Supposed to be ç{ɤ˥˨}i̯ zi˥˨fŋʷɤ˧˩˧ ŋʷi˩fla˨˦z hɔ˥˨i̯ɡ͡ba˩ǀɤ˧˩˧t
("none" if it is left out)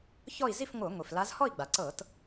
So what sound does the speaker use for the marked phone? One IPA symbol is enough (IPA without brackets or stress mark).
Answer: ɔ˥˨